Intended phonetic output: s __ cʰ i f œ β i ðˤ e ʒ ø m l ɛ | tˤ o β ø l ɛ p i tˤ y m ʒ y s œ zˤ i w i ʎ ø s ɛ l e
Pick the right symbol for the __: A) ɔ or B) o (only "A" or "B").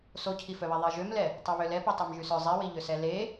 B